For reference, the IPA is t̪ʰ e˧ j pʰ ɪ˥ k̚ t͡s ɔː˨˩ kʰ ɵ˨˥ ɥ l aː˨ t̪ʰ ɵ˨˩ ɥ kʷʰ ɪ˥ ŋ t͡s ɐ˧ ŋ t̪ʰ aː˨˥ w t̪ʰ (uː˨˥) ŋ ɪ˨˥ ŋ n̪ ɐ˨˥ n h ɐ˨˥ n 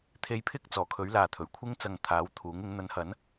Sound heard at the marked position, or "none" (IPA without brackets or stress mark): uː˨˥